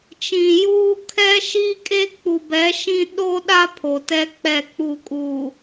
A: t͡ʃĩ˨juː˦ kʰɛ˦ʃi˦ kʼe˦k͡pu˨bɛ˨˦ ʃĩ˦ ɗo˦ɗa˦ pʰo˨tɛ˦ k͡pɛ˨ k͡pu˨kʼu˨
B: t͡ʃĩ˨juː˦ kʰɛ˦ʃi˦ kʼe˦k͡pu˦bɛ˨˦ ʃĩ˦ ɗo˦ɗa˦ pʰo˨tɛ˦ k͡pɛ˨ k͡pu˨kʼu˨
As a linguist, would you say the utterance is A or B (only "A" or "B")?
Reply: A